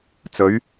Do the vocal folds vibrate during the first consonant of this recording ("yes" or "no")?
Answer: no